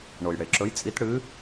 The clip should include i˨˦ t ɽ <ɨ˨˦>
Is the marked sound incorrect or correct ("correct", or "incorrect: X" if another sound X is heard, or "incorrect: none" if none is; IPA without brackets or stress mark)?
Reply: correct